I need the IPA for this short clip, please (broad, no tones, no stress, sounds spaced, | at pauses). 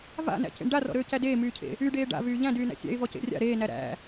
v a̰ n æ̰ c ḛ ɳ ɖ a r ɔ̰ ɾ øː c æ d eː m yː cʰ ḛ | y ɖ eː ɖ a̰ v yː ʎ æ̃ d yː n æ̰ sʲ æ̰ ɪ̯ v ɔ c ḛ rʲ a̰ ɾ eː n æ ɾ æ̰